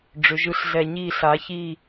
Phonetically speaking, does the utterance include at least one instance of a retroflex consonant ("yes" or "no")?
yes